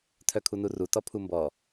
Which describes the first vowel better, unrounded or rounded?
rounded